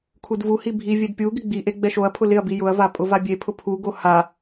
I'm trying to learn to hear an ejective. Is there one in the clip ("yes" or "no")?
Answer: yes